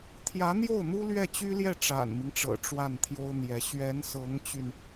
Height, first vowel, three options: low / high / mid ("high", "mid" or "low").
low